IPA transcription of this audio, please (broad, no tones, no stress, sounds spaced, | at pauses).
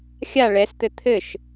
xʲ a ɭ ɛ s t̪ ɘ t̪ʰ ɘ ʃ